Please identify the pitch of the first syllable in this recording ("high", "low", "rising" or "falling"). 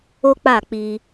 high